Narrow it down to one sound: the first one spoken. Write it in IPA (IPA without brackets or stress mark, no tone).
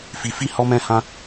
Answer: f